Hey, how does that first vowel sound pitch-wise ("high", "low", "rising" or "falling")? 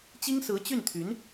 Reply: high